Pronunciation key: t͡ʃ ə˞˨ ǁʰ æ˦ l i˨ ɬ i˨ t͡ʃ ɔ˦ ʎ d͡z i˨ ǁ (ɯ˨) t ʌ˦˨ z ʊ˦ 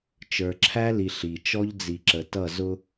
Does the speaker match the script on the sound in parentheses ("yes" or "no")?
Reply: no